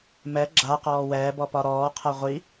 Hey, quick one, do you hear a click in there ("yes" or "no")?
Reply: yes